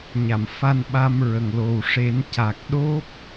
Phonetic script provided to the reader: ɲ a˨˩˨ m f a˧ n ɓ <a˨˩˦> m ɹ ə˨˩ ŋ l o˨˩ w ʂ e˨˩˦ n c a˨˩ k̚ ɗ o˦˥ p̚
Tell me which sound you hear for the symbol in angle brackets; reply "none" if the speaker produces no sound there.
a˧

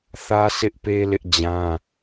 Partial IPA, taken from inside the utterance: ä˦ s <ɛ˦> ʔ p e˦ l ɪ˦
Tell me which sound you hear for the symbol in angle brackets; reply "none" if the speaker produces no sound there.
ɪ˦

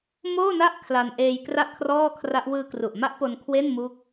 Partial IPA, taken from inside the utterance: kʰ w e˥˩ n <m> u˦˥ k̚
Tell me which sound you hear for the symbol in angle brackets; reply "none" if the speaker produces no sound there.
m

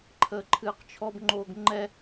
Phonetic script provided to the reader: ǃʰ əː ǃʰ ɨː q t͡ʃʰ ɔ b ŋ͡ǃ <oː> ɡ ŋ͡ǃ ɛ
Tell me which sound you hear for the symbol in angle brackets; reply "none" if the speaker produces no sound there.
oː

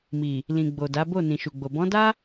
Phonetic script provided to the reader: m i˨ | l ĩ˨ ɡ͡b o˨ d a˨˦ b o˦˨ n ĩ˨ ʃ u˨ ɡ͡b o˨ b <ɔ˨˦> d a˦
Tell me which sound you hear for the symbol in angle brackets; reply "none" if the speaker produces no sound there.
ɔ̃˨˦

